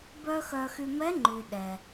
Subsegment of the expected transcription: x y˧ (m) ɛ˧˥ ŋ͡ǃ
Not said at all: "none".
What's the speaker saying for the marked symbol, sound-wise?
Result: m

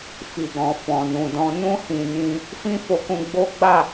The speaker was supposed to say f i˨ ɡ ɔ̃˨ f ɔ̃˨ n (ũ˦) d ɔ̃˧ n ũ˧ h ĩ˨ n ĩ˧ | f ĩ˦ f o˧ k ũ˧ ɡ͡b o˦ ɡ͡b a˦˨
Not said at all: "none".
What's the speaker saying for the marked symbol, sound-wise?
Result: ũ˨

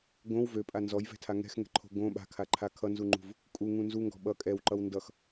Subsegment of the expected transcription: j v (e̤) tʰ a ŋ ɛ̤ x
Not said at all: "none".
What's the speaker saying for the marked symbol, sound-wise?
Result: ɛ̤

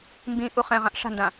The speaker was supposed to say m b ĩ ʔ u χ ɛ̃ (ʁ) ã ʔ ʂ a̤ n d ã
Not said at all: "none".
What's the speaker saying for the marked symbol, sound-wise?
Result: ʁ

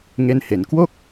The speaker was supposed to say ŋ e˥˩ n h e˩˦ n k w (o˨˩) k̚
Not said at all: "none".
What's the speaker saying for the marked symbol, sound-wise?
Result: o˥˩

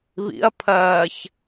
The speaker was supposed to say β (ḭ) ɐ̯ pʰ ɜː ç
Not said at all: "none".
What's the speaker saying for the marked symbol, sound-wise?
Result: ḭ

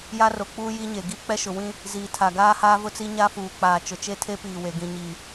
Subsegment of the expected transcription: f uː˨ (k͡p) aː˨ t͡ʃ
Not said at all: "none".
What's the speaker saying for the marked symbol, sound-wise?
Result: k͡p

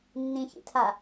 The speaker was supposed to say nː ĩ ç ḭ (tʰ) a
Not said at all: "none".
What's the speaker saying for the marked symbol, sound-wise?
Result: tʰ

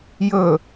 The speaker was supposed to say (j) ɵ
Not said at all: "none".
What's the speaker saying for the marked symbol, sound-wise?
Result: j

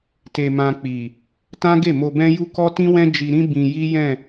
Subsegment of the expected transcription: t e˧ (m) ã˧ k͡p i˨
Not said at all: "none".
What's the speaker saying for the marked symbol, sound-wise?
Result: m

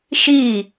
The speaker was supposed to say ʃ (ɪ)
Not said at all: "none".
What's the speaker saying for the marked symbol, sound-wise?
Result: i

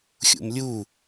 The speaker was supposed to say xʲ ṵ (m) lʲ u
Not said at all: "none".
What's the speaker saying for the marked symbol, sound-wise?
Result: m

